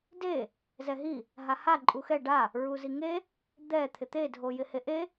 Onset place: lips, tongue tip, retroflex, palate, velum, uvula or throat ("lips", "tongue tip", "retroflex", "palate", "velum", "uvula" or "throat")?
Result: tongue tip